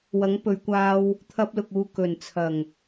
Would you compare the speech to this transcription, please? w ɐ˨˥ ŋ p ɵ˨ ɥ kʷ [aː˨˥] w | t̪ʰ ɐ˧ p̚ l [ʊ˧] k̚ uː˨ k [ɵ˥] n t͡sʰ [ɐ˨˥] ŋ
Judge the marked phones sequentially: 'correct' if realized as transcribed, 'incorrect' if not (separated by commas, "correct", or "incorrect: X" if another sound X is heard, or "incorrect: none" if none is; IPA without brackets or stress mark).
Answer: incorrect: aː˧, incorrect: ʊ˨, incorrect: ɵ˨˩, incorrect: ɐ˨˩